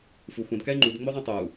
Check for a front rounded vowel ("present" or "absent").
present